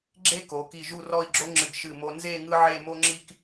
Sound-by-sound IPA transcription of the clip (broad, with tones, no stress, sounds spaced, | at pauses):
ɡ͡ǁ e˥ k o˩˧ k i˧˩ ʒ u˥˧ r ɔ˥˧ i̯ ɡ͡ǁ o˥ ŋ͡ǁ ɨ˧˩ ɡ ʃ ɨ˧˩ m o˧ n z e˥˧ ŋ ɯ˥ ʕ e˥˧ m o˥ ŋ͡ǁ i˥ k